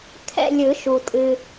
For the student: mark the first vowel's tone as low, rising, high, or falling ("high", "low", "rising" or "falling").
falling